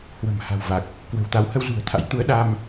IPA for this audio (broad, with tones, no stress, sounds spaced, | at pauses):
h w ə̤˨˩ m h a̤˨˩ w v a˨˩ k̚ | k w ə̤˨˩ w t̪ a˨˦ w h ə˧ w z ṳ˨˩ ə̯ t̪ʰ a̰˧˥ j t̪ u˨˦ ə̯ ɗ a˧ m